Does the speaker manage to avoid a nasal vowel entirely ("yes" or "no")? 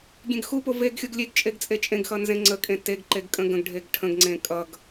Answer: no